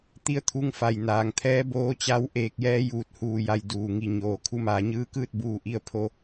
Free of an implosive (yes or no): yes